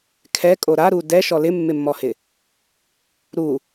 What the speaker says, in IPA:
kʰ ɛ kʼ o ɾ a ɾ u d ɛ ʃ ɔ l ɪ mː ɪ mː ɔ h ɪ | ɾ u

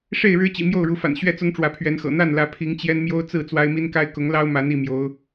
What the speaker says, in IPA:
ʂ e˥˨ ɪ̯ ɻ ɻ̩˦ t͡ɕ ḭ˨˩ m j o˥˨ ʊ̯ ɻ u˨˦ f a̰˨˩ n ɕ ɥ ɛ˥˨ t͡s ʊ˦ ŋ ʈ͡ʂ w ä˨˦ pʰ ɥ ɛ˨˦ n x ɤ̰˨˩ n̪ a˥˨ n l ä˨˦ pʰ i˨˦ ŋ t͡ɕ j ɛ˦ n m j o˦ ʊ̯ t͡s ɹ̩˥˨ t͡s w a˦ ɪ̯ m i˦ n k a˦ ɪ̯ k ʊ˨˦ ŋ l ɑ˦ ʊ̯ m a˨˦ n i˥˨ m j o˨˦ ʊ̯

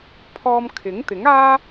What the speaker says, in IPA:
pʰ ɔː˧ m kʰ ɪ˨˥ ŋ t̪ ɪ˨˥ ŋ aː˥

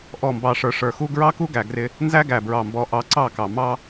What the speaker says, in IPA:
ʔ ɔ˦˨ m b ɑ˧ ʂ ə˞˧ ʂ ə˞˨ x u˦ ɡ ɹ ɑ˦ k u˦ ɡ æ˨ ɡ r ɪ˧ | n z æ˦ ɡ æ˨ b ɹ ɑ˨ m b ɔ˨˦ ʔ ɑ˧ ǀ ɑ˦˨ k ɑ˨ m ɑ˦

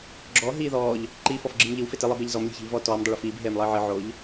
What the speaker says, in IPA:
ɡ͡ǁ ɔ ɦ iː ð ɔː ʎ | ǃ i f ɔ f ɡ͡ǁ ɨ m ʎ ɨ w f e t ɨ lˠ e b e ʎ z ɔ m lʲ e̤ ç e̤ ʎ v ɔː t ɔː m dˤ ɘ ɭ ɘ f iː b ɦ eː m lˠ ɘː ʕ ɨ ʕ o ʎ

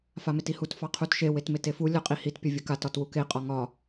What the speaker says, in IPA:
f a m e t i h u t f ɑ qʰ u t ʃ e w e t m e t e f u lʲ ɒ qʼ i h i t pʲ ʌ vʲ ʌ k a t ɒ t w u k e qʼ ɒ ŋ ɒ

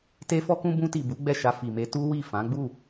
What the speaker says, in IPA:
t e˦ f ɔ˦ k ũ˦ b ũ˧ t i˨ b u˨˦ ɡ͡b ɛ˦˨ ʃ a˧ f i˨ m e˧ t u˦ w i˦˨ f ã˨˦ ɡ͡b u˦˨

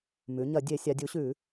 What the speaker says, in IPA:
m ʉ˩˧ ɲ ɐ˧˩˧ dʲ e˧˩˧ sʲ a˩˧ dʲ u˩˧ ɕ ʉ˧˩˧

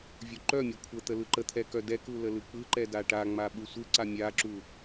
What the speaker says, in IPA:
vʲ u ǃ œ mʲ ɛ kʷʰ ə t̪ ə l ɯ ǃ ə t̪ʰ ɛ k œ d ɛ k u l ə l ɯ k͡p ɯ ǃ ɛ d a ʈ a ŋ͡m a ɓ ɯ sʷ ɯ ǀ a mʲ a ǁ u

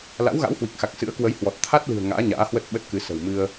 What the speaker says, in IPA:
l a̰˧˥ w ɣ a̰˧˥ w h w i˨˩ k̚ x a˨˩ k̚ s ɨ̰˧˥ ə̯ k w ə˨˦ j h w ɔ˨˩ t̚ t̪ʰ a˦˥ t̚ l ɨ̤˨˩ ə̯ ŋ a̰ː˧˥ ɲ a̰ː˧˥ h w ə˦˥ t̚ ɓ ə˦˥ t̚ k ɨ˨˦ s ə̤˨˩ w m ɨ˧ ə̯

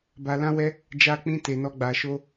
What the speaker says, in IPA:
b a˧ l ã˦ w ɛ˦ | d͡ʒ a˧ k͡p ĩ˧ t e˧ n ɔ˦ ɡ͡b a˧ ʃ o˦

